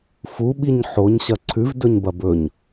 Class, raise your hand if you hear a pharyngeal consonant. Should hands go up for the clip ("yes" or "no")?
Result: yes